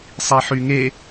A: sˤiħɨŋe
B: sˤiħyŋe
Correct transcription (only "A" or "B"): B